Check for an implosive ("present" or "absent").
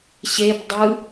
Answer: absent